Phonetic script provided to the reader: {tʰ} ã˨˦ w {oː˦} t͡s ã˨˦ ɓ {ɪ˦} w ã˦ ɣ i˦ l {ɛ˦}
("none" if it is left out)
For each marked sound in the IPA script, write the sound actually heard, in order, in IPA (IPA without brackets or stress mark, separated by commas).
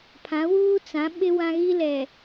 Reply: pʰ, uː˦, ɪ˦, ɛ˨